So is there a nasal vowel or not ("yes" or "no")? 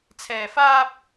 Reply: no